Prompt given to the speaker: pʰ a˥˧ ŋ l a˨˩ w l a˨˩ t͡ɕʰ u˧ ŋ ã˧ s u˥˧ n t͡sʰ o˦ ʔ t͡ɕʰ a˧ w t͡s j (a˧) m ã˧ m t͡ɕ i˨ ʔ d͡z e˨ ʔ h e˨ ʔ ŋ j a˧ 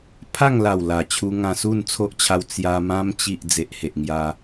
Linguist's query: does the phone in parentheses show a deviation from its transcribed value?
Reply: no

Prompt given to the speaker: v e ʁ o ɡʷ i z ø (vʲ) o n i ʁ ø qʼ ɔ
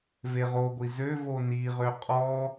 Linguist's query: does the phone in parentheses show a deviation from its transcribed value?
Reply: yes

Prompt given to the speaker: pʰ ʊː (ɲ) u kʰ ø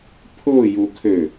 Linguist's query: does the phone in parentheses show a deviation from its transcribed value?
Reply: yes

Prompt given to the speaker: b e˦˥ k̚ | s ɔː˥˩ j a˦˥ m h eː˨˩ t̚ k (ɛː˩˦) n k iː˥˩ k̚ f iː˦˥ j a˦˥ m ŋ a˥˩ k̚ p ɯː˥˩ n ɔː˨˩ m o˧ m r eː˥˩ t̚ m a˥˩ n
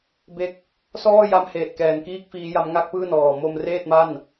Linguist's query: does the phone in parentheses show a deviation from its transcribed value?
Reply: yes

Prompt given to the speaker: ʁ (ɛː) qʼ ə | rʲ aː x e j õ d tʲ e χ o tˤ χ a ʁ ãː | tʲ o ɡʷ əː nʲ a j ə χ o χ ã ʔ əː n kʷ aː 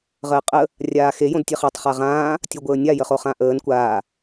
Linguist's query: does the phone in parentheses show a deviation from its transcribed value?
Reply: yes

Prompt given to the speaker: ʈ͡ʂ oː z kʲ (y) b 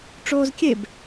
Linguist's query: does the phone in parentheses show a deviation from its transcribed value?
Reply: yes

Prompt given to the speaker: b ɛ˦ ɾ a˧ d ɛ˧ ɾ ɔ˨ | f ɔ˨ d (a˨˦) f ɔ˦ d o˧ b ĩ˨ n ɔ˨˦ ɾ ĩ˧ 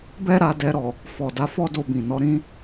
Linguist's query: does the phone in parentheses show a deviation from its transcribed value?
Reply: no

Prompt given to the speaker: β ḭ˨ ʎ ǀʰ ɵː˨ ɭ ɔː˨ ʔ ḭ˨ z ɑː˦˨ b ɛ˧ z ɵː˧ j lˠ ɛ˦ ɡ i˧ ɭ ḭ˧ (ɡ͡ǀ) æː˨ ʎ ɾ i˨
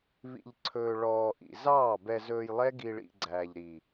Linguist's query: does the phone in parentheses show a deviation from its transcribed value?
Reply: no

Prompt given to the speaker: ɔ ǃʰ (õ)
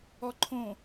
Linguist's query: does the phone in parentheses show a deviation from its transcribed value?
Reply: no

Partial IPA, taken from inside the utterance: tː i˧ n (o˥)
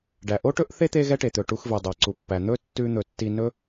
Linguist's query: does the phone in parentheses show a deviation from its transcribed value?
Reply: yes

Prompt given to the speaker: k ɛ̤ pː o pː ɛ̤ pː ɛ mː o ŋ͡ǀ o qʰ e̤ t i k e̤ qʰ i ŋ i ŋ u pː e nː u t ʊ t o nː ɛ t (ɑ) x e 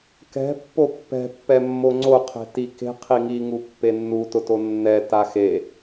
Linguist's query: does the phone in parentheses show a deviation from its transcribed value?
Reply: yes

